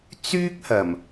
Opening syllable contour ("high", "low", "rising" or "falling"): high